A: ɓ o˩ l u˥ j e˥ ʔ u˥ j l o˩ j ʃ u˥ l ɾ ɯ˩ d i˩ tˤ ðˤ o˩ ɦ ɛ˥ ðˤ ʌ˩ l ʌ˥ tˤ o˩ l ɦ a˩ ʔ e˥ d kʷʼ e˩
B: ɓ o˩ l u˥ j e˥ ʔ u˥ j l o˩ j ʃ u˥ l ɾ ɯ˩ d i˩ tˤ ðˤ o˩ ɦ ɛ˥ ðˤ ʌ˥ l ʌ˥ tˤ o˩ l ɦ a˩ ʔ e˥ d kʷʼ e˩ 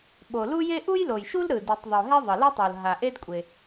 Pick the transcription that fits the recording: A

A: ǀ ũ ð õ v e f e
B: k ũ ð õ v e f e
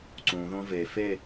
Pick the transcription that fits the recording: A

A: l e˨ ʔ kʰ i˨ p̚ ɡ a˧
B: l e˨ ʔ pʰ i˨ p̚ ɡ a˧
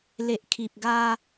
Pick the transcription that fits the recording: A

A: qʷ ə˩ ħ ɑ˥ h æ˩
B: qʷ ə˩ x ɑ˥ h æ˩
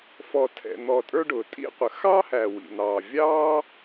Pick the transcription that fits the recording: B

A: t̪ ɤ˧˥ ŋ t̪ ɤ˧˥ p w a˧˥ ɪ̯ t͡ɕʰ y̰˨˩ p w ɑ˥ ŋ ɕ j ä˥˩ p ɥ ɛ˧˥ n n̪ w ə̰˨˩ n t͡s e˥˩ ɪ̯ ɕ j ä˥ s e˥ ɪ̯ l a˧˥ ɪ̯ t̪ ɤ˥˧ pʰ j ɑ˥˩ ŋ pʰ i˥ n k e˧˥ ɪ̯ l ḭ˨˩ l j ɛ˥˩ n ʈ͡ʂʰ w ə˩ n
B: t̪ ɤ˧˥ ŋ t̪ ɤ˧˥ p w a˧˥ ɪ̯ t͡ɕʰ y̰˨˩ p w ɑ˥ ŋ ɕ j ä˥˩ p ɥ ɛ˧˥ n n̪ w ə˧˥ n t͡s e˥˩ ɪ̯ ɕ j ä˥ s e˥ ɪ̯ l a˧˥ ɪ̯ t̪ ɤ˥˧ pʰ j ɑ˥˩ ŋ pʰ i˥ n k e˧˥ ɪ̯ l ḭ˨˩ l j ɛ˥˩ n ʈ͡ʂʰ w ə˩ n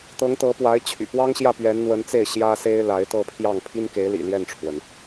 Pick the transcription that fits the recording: B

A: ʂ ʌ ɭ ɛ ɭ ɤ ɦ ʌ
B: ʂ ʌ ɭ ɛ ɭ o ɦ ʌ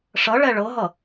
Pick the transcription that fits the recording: A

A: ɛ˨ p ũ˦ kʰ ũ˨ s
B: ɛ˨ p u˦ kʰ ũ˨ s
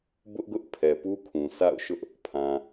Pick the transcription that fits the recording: B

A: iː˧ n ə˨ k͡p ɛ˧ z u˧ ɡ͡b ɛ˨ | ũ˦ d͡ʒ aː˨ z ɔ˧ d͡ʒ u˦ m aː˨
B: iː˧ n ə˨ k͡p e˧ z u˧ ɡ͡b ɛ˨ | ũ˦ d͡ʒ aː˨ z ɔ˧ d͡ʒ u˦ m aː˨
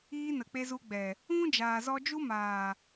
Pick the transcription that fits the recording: B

